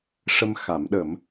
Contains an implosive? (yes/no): yes